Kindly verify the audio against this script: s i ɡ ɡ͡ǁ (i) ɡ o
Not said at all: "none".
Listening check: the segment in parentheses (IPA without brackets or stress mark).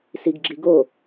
i